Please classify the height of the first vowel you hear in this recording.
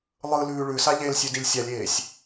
high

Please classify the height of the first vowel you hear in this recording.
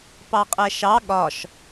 low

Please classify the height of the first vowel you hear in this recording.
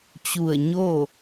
high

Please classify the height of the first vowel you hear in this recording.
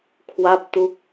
low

